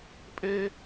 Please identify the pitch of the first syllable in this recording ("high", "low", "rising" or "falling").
high